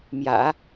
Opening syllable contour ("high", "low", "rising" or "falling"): low